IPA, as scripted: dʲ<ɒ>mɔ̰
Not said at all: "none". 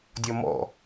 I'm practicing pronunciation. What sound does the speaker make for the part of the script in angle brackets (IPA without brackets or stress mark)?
ɒ